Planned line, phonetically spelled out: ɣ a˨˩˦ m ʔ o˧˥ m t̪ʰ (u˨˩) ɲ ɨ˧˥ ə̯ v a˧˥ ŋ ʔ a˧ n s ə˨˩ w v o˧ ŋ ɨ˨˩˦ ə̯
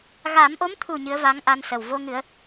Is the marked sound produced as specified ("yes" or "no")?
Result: yes